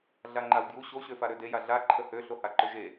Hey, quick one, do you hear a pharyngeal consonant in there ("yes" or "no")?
no